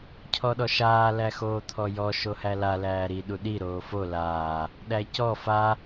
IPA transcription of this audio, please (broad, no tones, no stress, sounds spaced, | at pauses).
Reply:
cʰ ɔ ɗ ɔ ʃ aː l æ x oː t̪ʰ ɔ j ɔ ʃ o h æ l a l æː ɾ i ɗ u ɗ i ɾ oː f o l aː | ɗ æ c ɔ f a